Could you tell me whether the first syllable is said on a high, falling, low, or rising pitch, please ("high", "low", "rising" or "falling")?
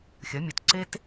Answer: rising